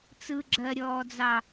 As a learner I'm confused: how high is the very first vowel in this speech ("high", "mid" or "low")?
high